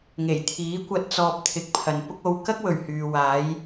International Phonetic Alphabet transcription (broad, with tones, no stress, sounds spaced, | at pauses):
ŋ e˨˩ j t̪ʰ iː˨˥ kʷ ɐ˧ t̚ t͡s ɔː˧ p̚ t̪ʰ ɪ˨˥ k̚ pʰ ɐ˨ n p ʊ˥ k̚ o˧ w k ɐ˥ k̚ w ɵ˨˩ ɥ h yː˨ w aː˨˧ j